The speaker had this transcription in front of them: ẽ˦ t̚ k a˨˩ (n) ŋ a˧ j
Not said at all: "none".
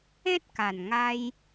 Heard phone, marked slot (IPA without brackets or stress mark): n